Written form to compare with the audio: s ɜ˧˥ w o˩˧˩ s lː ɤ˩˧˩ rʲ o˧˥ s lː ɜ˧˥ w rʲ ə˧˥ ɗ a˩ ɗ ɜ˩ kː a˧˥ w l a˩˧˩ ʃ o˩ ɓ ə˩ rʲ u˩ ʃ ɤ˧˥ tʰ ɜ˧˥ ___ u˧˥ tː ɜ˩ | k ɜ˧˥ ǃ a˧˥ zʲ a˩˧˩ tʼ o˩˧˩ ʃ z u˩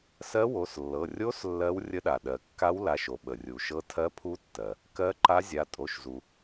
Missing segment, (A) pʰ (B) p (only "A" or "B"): A